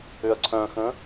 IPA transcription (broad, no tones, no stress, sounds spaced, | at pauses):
ʏ ɐ̯ ǀʰ œ̃ x ə̃